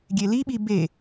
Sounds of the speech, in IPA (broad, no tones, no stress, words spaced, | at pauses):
ɡʲeliɓi be